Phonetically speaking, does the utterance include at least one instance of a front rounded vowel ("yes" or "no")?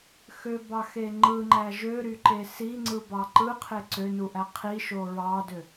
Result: yes